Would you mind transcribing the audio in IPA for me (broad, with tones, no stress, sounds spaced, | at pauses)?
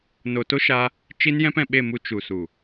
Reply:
n o˨ t o˦ ʃ a˧ | t͡ʃ i˧ n j ɛ̃˧ p ɛ̃˨ ɓ e˦˨ m u˧ t͡ʃ u˨ s u˨